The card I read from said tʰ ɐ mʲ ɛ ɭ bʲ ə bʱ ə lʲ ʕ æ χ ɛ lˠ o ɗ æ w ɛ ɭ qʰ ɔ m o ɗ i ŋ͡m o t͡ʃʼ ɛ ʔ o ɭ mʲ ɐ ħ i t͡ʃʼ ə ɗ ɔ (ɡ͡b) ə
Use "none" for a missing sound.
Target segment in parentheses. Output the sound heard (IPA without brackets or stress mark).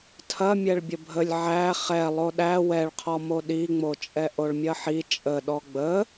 ɡ͡b